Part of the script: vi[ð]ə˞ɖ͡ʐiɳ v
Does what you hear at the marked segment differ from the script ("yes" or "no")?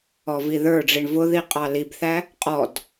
no